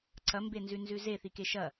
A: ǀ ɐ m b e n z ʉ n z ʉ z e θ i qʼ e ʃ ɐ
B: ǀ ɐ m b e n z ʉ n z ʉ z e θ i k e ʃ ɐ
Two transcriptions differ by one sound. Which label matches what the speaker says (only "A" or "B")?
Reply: B